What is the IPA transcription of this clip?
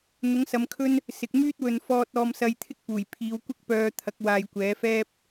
n̪ ʊ˨˥ ŋ s ɐ˨˧ m kʰ ɵ˥ n | s ɪ˨ k̚ m yː˥ t̚ w ɵ˨ n f ɔː˧ t̚ ɔː˧ m s ɐ˧ j t̪ʰ ɪ˥ k̚ p uː˨˩ j pʰ iː˨˧ w kʷ ɪ˥ k̚ p œː˧ t̪ʰ ɐ˨˥ k̚ w aː˧ j kʷ ɛː˨˥ f ɛː˥ p̚

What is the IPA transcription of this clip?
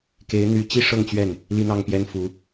k e˧˥ ɪ̯ n̪ y˧˥ t͡ɕ i˥ ʂ ɤ˥˧ ŋ t͡ɕ ɥ ɛ˥˩ n | l i˥˧ n̪ ɑ˥˩ ŋ p j ɛ˥ n f u˧˥

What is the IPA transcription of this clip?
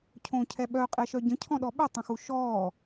cʰ õː cʰ ɛ ɓ œ qʼ ɛ ʃ œ ɟ ə̃ cʰ ɔ̃ ɗ ɔ ɓ ʏ tˤ ə̃ x u ʃ ɔː

